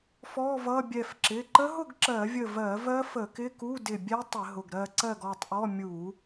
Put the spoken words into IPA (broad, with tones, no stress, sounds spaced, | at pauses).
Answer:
f ɔ˧˥˧ v ʌ˧˥˧ bʲ ɛ˧˩ f ǁ ɪ˩˧˩ ǃ ə˦˥ ɦ ʊ˥˧ ɡ ǁ ɜ˧˩˧ vʲ ə˧˩ v ɜ˧˩˧ v ɜ˦˥ f ə˧˩˧ k ɪ˧˥˧ k u˧˥˧ d ɪ˧˩ bʲ ɛ˦˥ tˤ ɪ˧˩˧ ɦ ʊ˩˧˩ ɡ ɾ ɜ˥˧ ǀ ɜ˥˧ ɡ ɔ˥˧ tˤ ʔ ɔ˧˥˧ mʲ u˧˩˧